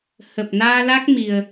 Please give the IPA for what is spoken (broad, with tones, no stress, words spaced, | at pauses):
hə˨˩p̚ naː˧la˦˥k̚mi˨˩ə̯